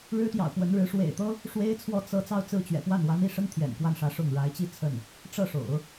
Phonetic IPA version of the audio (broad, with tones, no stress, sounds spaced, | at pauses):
ɻ ɻ̩˥ t̪ j ɑ̰˨˩ ʊ̯ p w ə˧˥ n ɻ ɻ̩˧˥ ʂ w ḛ˨˩ ɪ̯ t̪ ɤ˥ | ʂ w e˥ ɪ̯ t͡sʰ w ɔ˥˧ t͡s ɤ˥˧ t͡s ɑ˥˧ ʊ̯ t͡s ɹ̩˥˩ t͡ɕ ɥ ɛ̰˨˩ p w a˥˩ n w a˧˥ n i˥˩ ʂ ə˥ n t̪ʰ j ɛ̰˨˩ n k w a˥˩ n ʂ ä˧˥ ʂ ʊ˥˩ ŋ ɻ a˧˥ ɪ̯ t͡ɕ i˥˧ t͡sʰ ə˥˩ n | ʈ͡ʂ ɤ˥˩ ʂ o̰˨˩˦ ʊ̯